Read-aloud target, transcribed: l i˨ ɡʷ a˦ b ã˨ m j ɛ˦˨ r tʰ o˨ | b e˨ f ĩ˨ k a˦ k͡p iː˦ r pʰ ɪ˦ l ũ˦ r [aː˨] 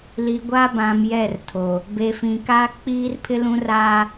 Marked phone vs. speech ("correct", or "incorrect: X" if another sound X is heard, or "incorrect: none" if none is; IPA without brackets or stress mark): incorrect: aː˦